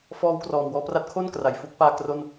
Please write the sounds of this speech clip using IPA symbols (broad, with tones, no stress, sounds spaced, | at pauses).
f ɔː˦˥ w k r ɔː˨˩ m w ɔː˧ p r a˦˥ t̚ kʰ o˥˩ n k r a˨˩ j f u˦˥ k̚ p aː˥˩ k r o˥˩ n